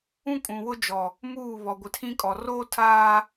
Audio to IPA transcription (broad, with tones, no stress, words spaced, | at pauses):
ũ˦kʼũ˨wʊ˦d͡ʒɔ˨ | muː˦˨ βɔ˨ɡʷɪ˨tʰĩ˦kʼɔ˨ roː˦tʰaː˦